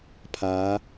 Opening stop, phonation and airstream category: aspirated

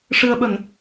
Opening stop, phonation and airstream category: implosive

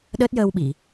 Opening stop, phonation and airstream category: implosive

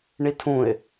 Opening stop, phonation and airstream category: aspirated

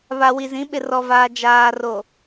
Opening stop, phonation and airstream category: implosive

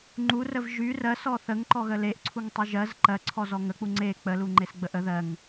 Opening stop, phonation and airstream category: click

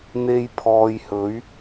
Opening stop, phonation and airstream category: aspirated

